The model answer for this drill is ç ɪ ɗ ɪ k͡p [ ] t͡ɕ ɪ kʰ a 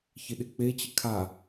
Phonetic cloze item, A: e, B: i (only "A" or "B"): A